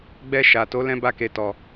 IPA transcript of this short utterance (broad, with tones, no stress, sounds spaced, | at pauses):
ɡ͡b ɛ˧ ʃ a˨ t o˨˦ l ɛ̃˦ b a˦ k e˧ t ɔ˧